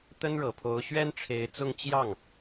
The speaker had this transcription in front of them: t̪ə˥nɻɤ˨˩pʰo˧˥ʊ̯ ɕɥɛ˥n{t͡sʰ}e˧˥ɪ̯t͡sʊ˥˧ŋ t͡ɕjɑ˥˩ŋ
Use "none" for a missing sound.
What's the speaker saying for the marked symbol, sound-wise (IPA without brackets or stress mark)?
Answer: ʈ͡ʂʰ